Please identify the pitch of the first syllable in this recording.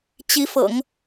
rising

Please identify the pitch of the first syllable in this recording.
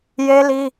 high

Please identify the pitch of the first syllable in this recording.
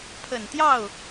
low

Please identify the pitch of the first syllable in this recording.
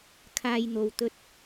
low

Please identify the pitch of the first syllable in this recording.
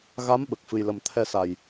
rising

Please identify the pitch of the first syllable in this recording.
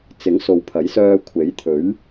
rising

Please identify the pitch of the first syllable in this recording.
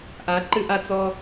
rising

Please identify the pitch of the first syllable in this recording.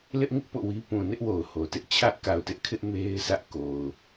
high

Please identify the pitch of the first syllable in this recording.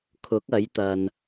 rising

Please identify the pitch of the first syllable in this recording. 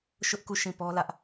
high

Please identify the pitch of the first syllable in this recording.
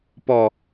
low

